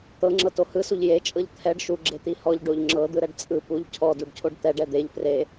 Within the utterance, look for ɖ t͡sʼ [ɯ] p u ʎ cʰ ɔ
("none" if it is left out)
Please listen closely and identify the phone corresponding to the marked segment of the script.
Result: ɯ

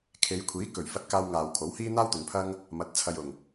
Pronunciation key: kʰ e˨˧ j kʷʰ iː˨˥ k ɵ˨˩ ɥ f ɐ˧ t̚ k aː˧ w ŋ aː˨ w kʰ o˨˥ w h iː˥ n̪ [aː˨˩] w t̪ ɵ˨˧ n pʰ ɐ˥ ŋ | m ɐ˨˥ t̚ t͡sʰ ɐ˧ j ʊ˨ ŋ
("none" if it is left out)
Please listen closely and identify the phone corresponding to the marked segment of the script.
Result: aː˥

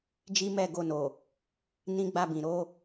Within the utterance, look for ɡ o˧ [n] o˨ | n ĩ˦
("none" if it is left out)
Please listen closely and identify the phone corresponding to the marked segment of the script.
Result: n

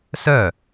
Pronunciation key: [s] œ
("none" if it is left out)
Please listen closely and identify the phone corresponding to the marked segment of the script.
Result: s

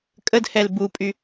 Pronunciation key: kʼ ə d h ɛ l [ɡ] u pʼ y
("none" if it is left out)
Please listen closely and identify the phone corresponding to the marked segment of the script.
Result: b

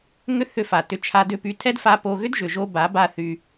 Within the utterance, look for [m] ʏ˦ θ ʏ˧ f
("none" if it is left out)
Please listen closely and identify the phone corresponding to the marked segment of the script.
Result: ŋ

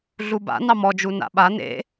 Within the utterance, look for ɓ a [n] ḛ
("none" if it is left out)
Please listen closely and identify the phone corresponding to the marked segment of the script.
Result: n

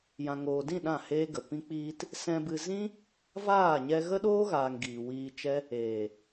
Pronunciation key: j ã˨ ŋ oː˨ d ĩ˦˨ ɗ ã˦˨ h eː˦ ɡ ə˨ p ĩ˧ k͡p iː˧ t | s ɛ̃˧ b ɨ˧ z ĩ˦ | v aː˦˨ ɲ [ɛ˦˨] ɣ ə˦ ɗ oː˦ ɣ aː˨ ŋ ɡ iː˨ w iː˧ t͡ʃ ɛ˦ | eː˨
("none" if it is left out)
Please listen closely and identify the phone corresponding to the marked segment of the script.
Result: ɛ˧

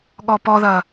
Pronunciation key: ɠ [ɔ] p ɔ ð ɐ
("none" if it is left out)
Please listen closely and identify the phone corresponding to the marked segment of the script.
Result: ɔ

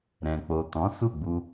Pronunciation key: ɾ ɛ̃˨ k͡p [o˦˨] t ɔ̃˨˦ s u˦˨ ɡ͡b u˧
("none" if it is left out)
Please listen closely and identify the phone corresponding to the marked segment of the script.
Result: o˨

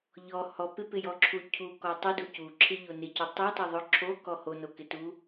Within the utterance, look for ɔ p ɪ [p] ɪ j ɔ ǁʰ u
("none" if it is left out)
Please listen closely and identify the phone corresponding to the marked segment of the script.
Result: p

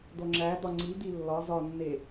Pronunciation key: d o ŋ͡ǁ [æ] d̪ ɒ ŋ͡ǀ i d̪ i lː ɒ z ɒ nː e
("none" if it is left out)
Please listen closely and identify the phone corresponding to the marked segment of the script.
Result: æ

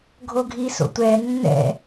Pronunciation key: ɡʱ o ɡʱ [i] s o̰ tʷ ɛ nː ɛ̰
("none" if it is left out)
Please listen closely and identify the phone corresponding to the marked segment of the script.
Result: i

